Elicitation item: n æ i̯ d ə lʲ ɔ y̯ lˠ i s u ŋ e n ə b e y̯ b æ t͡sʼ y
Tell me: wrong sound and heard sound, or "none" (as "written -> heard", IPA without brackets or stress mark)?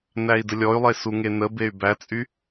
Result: i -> e